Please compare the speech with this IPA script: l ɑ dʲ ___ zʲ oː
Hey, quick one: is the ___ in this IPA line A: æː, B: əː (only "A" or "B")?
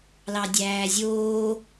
A